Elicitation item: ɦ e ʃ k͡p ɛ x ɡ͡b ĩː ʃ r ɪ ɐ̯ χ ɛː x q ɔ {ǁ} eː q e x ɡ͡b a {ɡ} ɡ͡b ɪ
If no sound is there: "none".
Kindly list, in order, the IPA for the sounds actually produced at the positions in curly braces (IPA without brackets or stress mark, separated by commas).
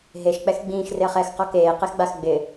k, x